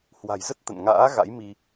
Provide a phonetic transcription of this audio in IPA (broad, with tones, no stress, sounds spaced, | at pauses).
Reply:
h w a̤˨˩ j z ə˦˥ t̚ t̪ ə̰˧˨ n ŋ a̰ː˧˥ ɣ a̰˧˥ j m i˧